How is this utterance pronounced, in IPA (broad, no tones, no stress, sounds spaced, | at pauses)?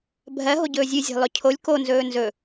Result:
bʱ ɜ ɦ o ɟ ɵː zʲ ɨ zʲ ɛ̤ lˠ ɵ cʰ o lʲ k o n z ɵː n z ɵ